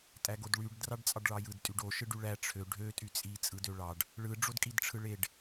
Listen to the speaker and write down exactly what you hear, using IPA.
tʼ æ ɡ o d ɭ y ɖ d r ɑ ɖ t͡sʼ ɑ ɖ ɭ ɑ j ɯ d tʼ y ɖ o ʃ ɯ ɖ y ɭ æ ʈ͡ʂʰ ø ɖʱ ø tʼ y t͡sʼ i t͡sʼ ɯ d ø ɭ ɑ ɖ | ɭ ɯ ɖ͡ʐ o d kʼ i d ʈ͡ʂʰ ɯ ɭ e ɖ

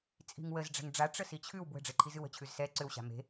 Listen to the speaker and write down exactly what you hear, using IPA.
t͡sʼ i̤ ŋ w ə z ɖ͡ʐ ɛ̤ ŋ ɖ͡ʐ a ʈ͡ʂ ə s i t͡ɕʰ ʉ w b w ə̤ ɖ͡ʐ e ǃʰ i z ɨ w ə̤ t͡ɕʰ ʉ z s ɛ ǀ ʏ w ɕ a̤ m e̤

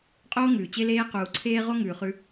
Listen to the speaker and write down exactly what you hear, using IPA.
qʼ oː˦ ŋ ʉː˨ t͡ɕ e˦ l eː˦ q uː˨ ǀʰ eː˦ ʁ o˦ ŋ ʉː˨ χ ʉ˦

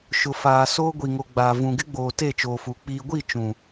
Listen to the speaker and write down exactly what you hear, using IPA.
ʃ ʊ˨ f aː˨ s oː˦ ɡʷ i˨ ŋ o˨ ɡ͡b aː˨ v ũ˨ ɡ ɪ˦ ɡ͡b oː˨ t e˦˨ t͡ʃ oː˨ f uː˨ k͡p iː˨ ɡʷ i˦˨ t͡ʃ ũ˨

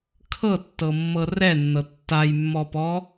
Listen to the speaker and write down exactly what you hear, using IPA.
kʰ ɤ tː ɤ mː ɤ r ɛ nː ɤ tː a j mː ɔ p ɔ

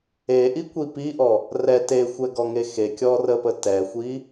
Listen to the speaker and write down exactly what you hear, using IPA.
e ʔ i kʷ i p i ʔ ɔ | r ɛ t e xʷ ɛ ɡ ɔ ŋ e x e kʲ ɔ r ə p ə t ɛ xʷ i

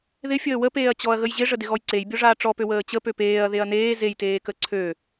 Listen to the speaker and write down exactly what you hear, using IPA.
ð ɪ fʲ əː w ə p eː ɐ̯ t͡ɕ ɔ ɐ̯ ɣ ə j ʑ ɪ ʐ ə d ɪ ɣ ɔ j ǀ e j bʲ ɔ ʐ aː ʈ͡ʂ ɔ p ø w əː t͡ɕ ə p ø p eː ɐ̯ ð e ɐ̯ n eː z e j t eː k ə ǀʰ ø

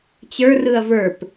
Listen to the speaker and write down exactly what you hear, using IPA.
t͡ɕ ə˞ r ɯ ɐ̯ v ə˞ p

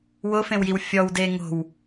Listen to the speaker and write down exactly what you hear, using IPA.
w ʊ f ẽ w j i w fʲ ɔ w d e ŋ o̤ w

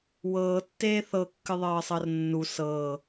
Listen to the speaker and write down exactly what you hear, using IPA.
w ɤː tː eː θ ɤ kː ɨ ðˤ ɤː sˤ ɤ r nː u s ɤ

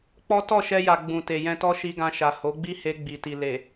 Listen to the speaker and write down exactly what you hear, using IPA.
k͡p ɔ˦ t ɔ˦˨ ʃ ɛ˧ j a˨ ɡ͡b ũ˨ t e˨ j ɛ̃˧ t ɔ˦ ʃ i˧ ɡ ã˧ ʃ a˨ h o˨˦ ɡ͡b i˦ h e˧ ɡ͡b i˨ t i˨ l e˨

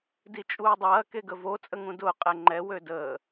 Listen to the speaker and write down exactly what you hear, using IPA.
d i t͡ʃʼ uː dˤ ɐː k e ɡ ə v o t͡sʼ ə ŋ ũ d ʊː qʼ ɛ ŋ͡ǃ ɛ w ø d əː

